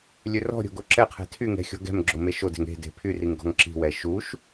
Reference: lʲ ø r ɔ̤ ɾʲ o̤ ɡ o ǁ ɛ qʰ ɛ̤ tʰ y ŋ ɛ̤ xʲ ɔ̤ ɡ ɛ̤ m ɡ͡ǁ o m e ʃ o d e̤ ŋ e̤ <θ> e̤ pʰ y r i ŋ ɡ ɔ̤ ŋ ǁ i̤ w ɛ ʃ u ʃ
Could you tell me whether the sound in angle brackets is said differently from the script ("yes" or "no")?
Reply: yes